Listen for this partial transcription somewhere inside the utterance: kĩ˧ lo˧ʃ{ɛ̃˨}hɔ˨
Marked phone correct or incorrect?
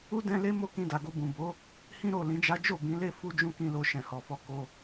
correct